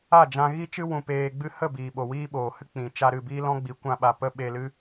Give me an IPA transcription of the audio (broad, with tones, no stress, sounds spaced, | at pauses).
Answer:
a˦˨ d͡ʒ ã˧ ɣ i˦ t͡ʃ ɨ˦ w ũ˧ p eː˧ ɡ͡b ɨ˦ h ə˦˨ b iː˨ ɓ o˨ w iː˦ ɓ oː˨ h ɨ˦ k͡p ĩ˨ t͡ʃ a˧ ɾ ɨ˦˨ b iː˦ l ɔ̃˦ ɡ͡b i˨˦ kʷ ã˧ ɓ a˨ p ə˧ ɓ e˧ l ɨ˦